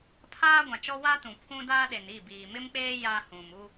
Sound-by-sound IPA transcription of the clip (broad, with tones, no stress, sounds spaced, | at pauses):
pʰ aː˦ ɡʷ ã˨ t͡ʃ ɔ˦ w a˦ t ũ˨ pʰ ũ˦ d aː˦ ɗ e˨ n i˦˨ b iː˨ m ɪ˦ m k͡p eː˦ j a˦ h ũ˨ m u˦